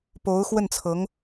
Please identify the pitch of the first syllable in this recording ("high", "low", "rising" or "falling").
rising